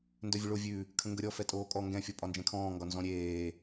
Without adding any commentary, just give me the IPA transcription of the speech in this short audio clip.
n d œ vʲ ʊ ɭ o vʲ ʉ | kʰ ə̃ ŋ ɡ ə ɾʲ ɔ f ɛ tʼ oː kʼ ɔ ŋ ɡ ɛ̃ fʲ ɔ pʼ ɒ n d͡ʒ ɛ̃ kʰ ɔ̃ː ŋ ɡ ɒ n z ɔ̃ ɾʲ eː

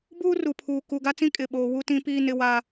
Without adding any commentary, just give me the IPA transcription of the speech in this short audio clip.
b uː˦ r u˨ pʰ uː˨ k u˨ ɡ a˦ t͡s ĩ˦ kʼ ɪ˦˨ ɓ oː˦ w u˦ t ĩ˦ p iː˦ n ɪ˦ w a˦

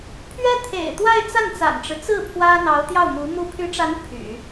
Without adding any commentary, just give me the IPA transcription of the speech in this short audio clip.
pʰ ɥ ɛ˥ t̪ʰ ḛ˨˩ ɪ̯ t̪ w a˥˧ ɪ̯ t͡s a˥˩ n t͡s a̰˨˩ n ʈ͡ʂ ɻ̩˦ t͡s ɹ̩˥˩ pʰ w ä˥ n̪ ɑ˧˥ ʊ̯ t̪ j ɑ˥˩ ʊ̯ m u˧˥ m u˧˥ pʰ y˧˥ ʈ͡ʂ a˧˥ n pʰ y̰˨˩˦

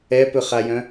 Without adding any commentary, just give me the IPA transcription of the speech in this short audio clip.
ɛ p ɵ χ a j œ̃

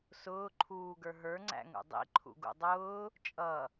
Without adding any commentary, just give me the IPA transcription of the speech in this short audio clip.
s ʊː ǃʰ uː ɡ ə˞ ɦ ə˞ ŋ͡ǀ æ̰ ŋ ṵ dˤ ḭ ǃʰ ṵ ɡ ṵ dˤ ʊː | t͡ʃʼ ʌ

